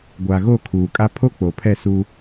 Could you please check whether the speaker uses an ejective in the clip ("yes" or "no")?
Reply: yes